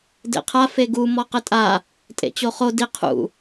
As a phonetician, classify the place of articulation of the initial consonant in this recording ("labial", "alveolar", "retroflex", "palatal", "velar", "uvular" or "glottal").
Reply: alveolar